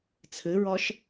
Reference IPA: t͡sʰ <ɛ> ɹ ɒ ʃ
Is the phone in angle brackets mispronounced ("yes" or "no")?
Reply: yes